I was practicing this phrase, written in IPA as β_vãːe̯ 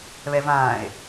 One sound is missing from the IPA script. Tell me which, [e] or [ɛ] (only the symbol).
ɛ